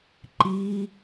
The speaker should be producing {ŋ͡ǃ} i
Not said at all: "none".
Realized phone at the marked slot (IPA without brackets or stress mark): ǃ